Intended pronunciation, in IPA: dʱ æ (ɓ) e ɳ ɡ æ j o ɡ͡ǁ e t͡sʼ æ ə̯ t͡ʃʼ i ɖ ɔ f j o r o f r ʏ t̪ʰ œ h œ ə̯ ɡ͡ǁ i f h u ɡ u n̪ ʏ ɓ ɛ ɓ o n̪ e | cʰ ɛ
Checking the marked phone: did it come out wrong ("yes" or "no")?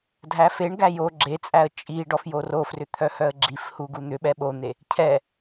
yes